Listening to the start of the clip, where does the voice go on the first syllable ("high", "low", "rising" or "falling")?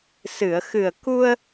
low